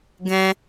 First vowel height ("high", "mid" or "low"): mid